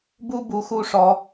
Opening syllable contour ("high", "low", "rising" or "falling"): high